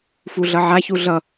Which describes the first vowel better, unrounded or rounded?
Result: rounded